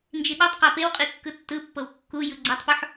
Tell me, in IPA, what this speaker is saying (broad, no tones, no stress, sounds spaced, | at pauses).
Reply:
n d͡ʒ i ɗ ɔ tˤ q a p e w qʼ i kː ɯ tː ɯ pː ɤ w kː u j ɯ ɡ͡ǀ ɛ tˤ p o ħ